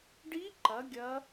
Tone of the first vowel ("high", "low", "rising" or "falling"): rising